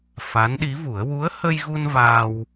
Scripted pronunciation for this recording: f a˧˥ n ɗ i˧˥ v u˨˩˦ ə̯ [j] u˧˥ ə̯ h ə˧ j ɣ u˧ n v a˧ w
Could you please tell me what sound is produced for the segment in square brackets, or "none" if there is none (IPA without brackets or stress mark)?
w